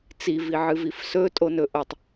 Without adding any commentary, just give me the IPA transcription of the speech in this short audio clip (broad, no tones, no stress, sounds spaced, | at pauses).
t͡s i v i ʕ ɨ v i f s ɵ tʼ o n ɵ ʔ o tˤ